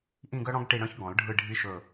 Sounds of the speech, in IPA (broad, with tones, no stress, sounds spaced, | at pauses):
ʔ ĩ˦˨ ɡ œ˦ ɽ ɔ̃˦ ɡ ʈ i˦˨ ɽ œ̃˦ ç ɡ ɔ̃˨˩˦ l ɖʱ ɯ˦˨ ɖʱ i˦ ʃ ɵ˦˨